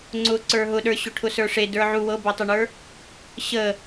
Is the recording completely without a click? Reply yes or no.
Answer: no